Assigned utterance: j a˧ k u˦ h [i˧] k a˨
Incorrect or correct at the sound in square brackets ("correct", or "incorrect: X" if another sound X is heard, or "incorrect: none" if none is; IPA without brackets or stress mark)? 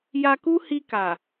correct